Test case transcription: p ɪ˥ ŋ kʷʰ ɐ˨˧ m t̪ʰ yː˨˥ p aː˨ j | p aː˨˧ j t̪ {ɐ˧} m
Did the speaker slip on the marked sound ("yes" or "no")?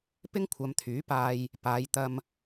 no